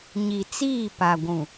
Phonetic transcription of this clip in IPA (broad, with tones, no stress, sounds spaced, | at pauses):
ɲ i˨ t͡s iː˦˨ p a˨ ɡʷ ũ˨